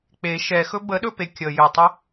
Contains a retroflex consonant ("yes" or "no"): no